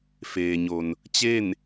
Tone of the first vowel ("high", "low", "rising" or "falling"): low